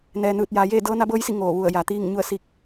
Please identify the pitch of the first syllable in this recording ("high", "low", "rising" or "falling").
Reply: low